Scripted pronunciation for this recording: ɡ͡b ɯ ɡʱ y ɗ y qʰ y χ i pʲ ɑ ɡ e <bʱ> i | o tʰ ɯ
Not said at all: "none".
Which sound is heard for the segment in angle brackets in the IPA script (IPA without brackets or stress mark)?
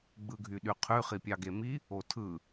m